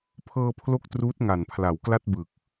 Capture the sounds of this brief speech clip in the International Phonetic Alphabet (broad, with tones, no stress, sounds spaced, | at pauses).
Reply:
pʰ ɤː˧ pʰ l o˦˥ k̚ t r uː˦˥ t̚ ŋ a˨˩ n pʰ l a˩˦ w k l a˥˩ t̚ b ɯ˨˩ k̚